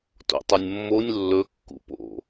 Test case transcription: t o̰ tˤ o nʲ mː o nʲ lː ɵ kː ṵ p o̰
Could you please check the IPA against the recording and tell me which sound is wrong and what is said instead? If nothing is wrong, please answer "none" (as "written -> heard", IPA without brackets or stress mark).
none